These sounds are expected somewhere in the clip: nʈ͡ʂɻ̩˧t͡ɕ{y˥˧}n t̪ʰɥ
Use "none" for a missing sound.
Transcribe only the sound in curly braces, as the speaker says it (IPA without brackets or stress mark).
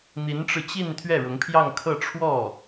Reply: i˥˧